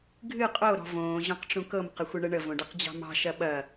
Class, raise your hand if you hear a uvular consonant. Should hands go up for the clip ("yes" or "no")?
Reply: yes